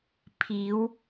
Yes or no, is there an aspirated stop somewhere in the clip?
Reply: yes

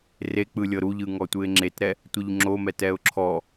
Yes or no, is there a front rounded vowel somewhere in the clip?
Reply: no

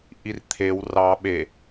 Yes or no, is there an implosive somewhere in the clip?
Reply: yes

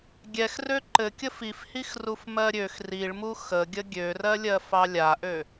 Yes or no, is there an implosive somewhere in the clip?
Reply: no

